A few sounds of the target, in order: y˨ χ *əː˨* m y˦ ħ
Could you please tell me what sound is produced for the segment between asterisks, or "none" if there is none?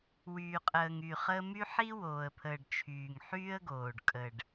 əː˦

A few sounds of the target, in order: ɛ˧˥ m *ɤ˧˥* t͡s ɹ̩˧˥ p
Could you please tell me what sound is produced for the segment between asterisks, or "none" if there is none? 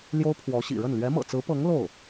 ɤ̰˨˩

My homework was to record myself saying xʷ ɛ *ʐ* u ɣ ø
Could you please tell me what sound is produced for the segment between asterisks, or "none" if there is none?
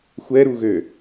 ɾ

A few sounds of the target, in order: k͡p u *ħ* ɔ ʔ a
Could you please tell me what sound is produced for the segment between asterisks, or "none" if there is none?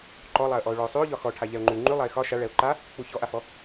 ç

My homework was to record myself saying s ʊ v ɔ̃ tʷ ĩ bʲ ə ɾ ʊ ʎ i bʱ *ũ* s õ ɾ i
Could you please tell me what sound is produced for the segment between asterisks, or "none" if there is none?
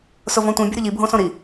õ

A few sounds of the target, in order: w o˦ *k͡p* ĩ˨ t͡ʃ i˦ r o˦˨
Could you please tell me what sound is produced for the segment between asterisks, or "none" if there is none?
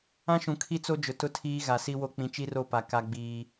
k͡p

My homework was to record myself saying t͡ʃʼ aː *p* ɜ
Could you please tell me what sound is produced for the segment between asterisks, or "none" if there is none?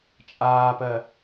p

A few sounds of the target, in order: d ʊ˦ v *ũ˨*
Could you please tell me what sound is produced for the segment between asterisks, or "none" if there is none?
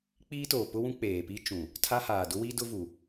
u˨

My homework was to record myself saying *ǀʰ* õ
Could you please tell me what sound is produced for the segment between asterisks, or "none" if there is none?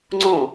ŋ͡ǀ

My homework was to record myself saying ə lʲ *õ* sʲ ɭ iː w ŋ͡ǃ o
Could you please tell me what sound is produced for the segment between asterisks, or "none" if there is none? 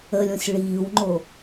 õ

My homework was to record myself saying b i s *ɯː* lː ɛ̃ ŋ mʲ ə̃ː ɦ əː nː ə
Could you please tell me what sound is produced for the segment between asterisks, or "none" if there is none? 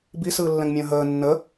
ɯː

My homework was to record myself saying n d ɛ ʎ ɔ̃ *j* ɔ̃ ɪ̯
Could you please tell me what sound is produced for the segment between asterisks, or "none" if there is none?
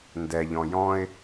j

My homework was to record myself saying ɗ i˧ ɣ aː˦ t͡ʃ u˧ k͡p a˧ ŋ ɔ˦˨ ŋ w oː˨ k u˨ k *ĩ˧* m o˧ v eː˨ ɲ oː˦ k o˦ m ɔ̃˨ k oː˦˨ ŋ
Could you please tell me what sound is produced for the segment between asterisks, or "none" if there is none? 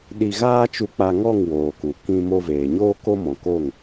ĩ˧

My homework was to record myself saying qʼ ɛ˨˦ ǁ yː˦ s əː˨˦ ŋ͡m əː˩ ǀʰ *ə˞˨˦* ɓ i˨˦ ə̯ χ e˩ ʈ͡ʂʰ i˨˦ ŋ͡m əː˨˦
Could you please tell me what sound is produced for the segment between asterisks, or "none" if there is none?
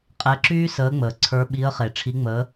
ə˞˨˦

